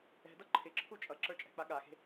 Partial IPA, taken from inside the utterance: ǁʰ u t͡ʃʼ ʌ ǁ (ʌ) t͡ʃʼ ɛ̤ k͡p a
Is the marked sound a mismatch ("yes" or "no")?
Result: yes